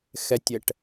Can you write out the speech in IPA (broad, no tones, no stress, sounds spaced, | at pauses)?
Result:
x ɛ tʲ ɛ ʈ